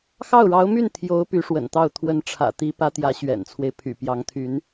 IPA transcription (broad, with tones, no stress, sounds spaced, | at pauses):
x ɑ˥˩ ʊ̯ ɻ ɑ˧˥ ʊ̯ m y˥˩ n t̪ʰ j o˧˥ ʊ̯ p y˧˥ ʂ w ə̰˨˩ n t̪ ɑ˥˩ ʊ̯ t̪ʰ w ə˧˥ n ʈ͡ʂʰ ä̰˨˩ t̪ i˧˥ p ä˧˥ t̪ j ä˧˥ ɕ ɥ ɛ̰˨˩ n t͡sʰ w e˦ ɪ̯ pʰ y̰˨˩ p j ɑ˧˥ ŋ t̪ʰ y˧˥ n